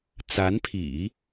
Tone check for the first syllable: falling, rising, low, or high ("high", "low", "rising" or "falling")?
rising